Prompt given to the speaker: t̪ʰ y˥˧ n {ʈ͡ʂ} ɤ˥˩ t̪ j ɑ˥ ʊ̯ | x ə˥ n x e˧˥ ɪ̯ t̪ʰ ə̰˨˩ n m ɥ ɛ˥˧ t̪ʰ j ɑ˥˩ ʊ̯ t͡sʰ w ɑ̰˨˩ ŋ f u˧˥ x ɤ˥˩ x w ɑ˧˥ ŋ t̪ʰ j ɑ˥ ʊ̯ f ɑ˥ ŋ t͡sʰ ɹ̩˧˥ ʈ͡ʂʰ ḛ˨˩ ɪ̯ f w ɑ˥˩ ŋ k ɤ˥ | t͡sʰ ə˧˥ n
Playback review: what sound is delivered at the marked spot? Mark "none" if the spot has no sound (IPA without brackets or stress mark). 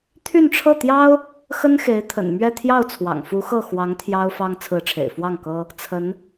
ʈ͡ʂʰ